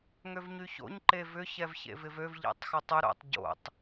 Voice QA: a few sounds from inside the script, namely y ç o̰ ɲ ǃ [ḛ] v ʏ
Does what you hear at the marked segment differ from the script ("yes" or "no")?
yes